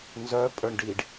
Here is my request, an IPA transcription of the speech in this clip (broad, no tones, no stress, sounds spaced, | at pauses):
n z œ pʼ ə˞ ɳ ɖ iː ɖ